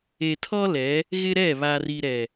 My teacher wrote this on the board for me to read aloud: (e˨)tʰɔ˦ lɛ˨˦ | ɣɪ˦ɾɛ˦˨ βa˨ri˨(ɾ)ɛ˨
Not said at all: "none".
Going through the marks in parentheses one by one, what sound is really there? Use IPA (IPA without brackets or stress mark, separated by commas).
e˨, ɾ